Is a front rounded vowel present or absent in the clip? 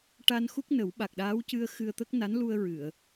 absent